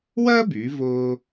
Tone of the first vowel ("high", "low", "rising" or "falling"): high